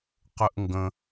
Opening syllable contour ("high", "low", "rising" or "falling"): high